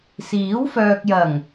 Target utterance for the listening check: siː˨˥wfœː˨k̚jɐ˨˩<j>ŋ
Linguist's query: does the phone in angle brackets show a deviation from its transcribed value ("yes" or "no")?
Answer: yes